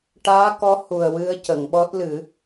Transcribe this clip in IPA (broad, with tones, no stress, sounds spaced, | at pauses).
ʈ aː˧˥ k ɔ˧˥ h u˨˩ ə̯ w ɨ˧ ə̯ c ə˨˩˨ ŋ ɓ ɔ˦˥ t̚ l ɨ˨˩˦